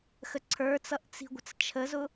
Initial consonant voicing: voiceless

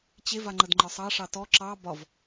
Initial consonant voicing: voiceless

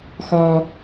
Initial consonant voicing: voiceless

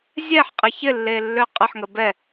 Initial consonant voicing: voiced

